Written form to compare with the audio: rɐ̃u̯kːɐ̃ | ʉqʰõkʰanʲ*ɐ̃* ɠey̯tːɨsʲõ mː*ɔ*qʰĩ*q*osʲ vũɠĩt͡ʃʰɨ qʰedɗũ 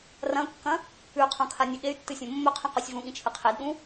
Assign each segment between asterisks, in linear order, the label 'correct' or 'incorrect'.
incorrect: ɐ, incorrect: ɵ, correct

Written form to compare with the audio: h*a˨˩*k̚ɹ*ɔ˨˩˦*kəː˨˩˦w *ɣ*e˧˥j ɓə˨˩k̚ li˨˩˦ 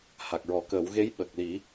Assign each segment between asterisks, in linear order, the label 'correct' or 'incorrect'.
correct, correct, correct

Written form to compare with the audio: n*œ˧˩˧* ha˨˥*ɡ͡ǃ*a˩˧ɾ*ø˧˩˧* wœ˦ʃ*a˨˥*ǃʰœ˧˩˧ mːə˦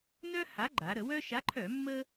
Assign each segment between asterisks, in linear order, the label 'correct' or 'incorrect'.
incorrect: œ˦, correct, incorrect: ə˧˩˧, correct

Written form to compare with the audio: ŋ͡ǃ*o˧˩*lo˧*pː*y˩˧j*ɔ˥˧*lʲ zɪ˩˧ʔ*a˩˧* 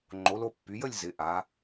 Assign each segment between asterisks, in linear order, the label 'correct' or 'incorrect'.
incorrect: o˩˧, correct, incorrect: ə˥˧, correct

